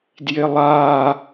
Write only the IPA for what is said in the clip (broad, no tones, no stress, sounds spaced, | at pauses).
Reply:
d j ɪ lˠ a